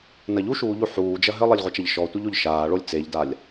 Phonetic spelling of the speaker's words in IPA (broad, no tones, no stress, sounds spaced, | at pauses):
n ɐ ʎ u ʃ uː ʎ u ħ uː d͡ʒ ɐ ɦ ɘ lˠ e lʲ ʁʷ ɐ t͡ʃ ɐ ʎ ʃ ɔ tʷ ɘ ʎ o ʎ ʃ aː ɭ o lʲ t͡s e ʎ d a lʲ